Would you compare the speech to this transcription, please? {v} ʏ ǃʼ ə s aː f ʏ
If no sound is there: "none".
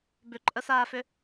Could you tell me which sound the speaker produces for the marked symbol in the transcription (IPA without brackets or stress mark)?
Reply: b